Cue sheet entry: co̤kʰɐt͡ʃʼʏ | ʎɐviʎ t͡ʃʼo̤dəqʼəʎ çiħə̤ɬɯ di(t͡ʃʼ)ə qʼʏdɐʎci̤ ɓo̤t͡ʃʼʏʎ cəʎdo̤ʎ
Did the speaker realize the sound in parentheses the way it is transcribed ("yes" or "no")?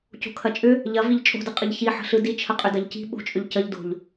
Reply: no